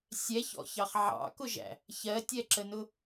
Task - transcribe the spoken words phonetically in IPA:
sʲ ɛ ç ɔ̰ ç ɑ χ ʕ ɑ̰ k ʊ ʒ æ̰ | ç ɜ tʲ ɛ ǁ ə n ʊ

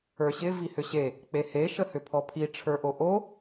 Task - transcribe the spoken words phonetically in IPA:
ə˞ ɕ ɪ v i h ʏ ɕ e | k͡p e h e ʃ ə h ʏ pʰ ɔ pʰ i ʈ͡ʂʰ ə˞ ʔ o ʔ o

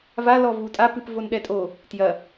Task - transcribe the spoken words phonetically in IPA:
v a l ɔ v u tʼ a p ɨ p v o n ɗ ɛ tʼ o | t j ɐ

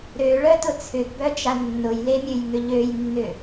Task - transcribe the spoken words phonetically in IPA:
ɾ ø ɭ œ t ʊ t͡sʰ ʏ ɡ b œ d͡ʒ a nː ʊ j l e mʲ ø j ŋ ʏ ʎ ø j nː ʏ

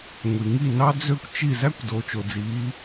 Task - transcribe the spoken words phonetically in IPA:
ŋʷ i˨ ŋ i˦˨ n ɑ˦ d͡z ø˦ kʷ t͡ʃ i˦˨ z æ˦ kʷ d o˨˦ t͡ʃ o˨ d͡z iː˨˦

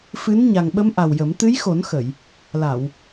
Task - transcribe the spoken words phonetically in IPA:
f ɨ˧˥ n ɲ a˨˩ ŋ ɓ ə˧˥ m ʔ a˨˩ w j ə˨˩˦ m t̪ ɨ˧˥ j x o˨˩˦ n x ə˨˩˨ j | l a˨˩˨ w

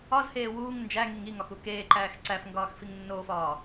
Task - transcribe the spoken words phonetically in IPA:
ɒ z h eː w uː ŋ n d͡ʒ æ ŋ i ŋ i ŋ ɒ x u k eː ǃ æː x ǀ æ f ŋ ɡ ɒː x f i ŋ nː oː f ɒː

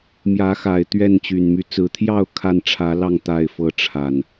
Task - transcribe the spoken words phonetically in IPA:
m j ä˨˦ x a˨˩ ɪ̯ t̪ ɥ ɛ˥˨ n t͡ɕ y˨˩ n m y˦ t͡s ɹ̩˨˩ t̪ʰ j ɑ˥˨ ʊ̯ kʰ a˥˨ n ʈ͡ʂʰ ä˨˦ l ɑ˥˨ ŋ t̪ a˥˨ ɪ̯ f ɤ˦ ʈ͡ʂʰ a˨˩ n

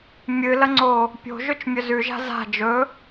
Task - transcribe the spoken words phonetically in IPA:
mʲ ɨ l ɐ ŋ͡ǀ o | pʲ o̤ ʒ ɵ t͡ʃ mʲ ɵ z ʉ ʒ a̤ z a̤ d͡ʒ ɵ

